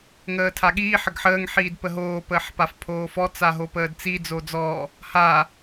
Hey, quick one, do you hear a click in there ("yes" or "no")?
no